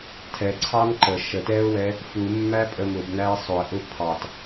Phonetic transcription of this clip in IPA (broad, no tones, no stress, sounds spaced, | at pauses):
tʰ ɛ ǀʰ ɑ n ǃ ə ʃ ə t ɛ ʊ̯ w ɛ | f u mː æ pʼ ə m ʊ b n æ ɪ̯ sˤ ʊ ə̯ ʔ ʊ pʰ ɑ t